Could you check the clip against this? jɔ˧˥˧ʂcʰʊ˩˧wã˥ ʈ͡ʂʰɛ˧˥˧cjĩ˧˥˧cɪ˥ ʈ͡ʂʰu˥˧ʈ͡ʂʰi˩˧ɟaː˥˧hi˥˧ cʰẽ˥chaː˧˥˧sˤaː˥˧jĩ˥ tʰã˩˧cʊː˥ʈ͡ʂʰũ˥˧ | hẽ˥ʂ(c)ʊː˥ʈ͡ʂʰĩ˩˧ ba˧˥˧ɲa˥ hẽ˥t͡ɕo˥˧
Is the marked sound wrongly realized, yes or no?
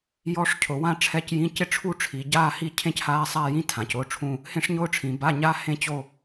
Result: yes